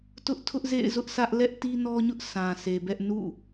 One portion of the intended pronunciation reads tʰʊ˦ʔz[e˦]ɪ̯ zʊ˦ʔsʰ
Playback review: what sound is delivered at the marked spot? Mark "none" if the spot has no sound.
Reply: ḛ˦˨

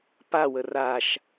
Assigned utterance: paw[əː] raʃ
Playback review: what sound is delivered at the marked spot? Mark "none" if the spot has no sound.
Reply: ə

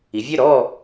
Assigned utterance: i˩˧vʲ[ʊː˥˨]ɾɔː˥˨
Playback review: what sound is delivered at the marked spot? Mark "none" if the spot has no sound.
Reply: əː˥˨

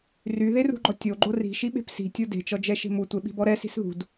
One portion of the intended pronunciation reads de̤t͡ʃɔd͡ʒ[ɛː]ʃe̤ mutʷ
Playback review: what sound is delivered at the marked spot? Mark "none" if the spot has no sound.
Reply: ɛ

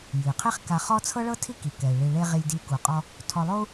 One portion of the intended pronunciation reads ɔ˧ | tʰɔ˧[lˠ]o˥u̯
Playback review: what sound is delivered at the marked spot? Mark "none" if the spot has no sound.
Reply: lˠ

